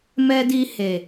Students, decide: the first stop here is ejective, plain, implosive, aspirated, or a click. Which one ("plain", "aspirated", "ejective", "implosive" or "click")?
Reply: plain